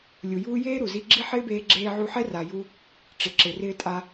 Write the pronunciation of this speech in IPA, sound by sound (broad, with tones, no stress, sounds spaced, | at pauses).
lʲ u˨ j uː˦ j eː˦ ɾ u˨ z i˧ ɡ͡ǁ i˦ ħ ɪː˦ b eː˧ ɡ͡ǁ eː˧ ʕ u˧ ħ ɛ˦ r a˨ j u˧ | ʈ͡ʂ ɪ˨ ǁ ɪ˨ r ɪː˦ tʼ a˦